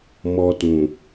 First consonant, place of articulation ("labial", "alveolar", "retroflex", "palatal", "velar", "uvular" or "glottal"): labial